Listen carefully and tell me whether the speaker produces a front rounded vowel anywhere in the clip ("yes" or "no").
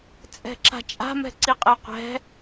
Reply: no